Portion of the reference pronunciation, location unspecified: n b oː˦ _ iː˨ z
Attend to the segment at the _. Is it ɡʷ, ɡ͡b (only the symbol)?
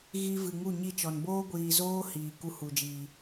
ɡʷ